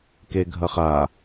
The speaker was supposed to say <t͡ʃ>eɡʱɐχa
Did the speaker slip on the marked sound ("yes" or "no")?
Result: yes